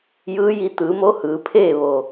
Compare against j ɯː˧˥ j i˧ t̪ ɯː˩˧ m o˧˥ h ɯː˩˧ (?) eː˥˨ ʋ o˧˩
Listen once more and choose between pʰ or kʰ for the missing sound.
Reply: pʰ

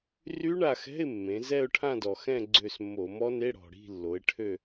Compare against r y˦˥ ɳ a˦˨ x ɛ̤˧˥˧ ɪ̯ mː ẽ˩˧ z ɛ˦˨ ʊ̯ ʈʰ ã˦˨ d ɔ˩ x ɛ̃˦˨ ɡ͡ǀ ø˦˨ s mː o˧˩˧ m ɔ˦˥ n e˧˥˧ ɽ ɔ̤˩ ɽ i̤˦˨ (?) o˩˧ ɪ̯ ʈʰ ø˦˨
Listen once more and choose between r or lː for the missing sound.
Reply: lː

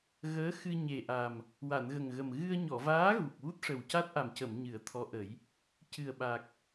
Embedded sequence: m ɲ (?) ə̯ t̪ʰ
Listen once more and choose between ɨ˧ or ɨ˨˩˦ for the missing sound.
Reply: ɨ˨˩˦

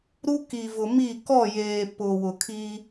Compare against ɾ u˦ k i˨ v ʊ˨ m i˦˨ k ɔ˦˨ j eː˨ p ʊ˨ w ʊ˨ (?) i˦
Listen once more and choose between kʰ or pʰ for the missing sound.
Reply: kʰ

